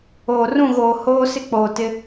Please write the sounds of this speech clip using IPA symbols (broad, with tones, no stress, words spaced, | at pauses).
oː˨rũ˦˨ɣoː˨ hoː˦ sɪ˦k͡poː˨ tɪ˦